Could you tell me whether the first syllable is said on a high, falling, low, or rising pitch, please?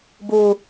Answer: high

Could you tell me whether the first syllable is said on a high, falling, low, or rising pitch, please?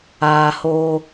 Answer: low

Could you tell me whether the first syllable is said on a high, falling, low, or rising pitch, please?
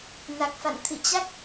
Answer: low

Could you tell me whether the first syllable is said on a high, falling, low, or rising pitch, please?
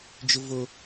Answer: high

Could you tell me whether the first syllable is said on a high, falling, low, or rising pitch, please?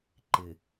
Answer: low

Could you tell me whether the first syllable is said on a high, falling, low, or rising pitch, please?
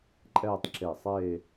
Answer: falling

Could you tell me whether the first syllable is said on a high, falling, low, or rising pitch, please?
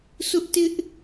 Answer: high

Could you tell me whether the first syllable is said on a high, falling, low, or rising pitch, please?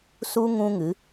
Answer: high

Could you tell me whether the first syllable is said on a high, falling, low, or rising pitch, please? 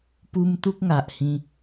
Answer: high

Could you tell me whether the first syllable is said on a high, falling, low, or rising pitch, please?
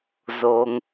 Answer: low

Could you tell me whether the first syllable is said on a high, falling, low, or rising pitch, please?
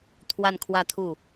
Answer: falling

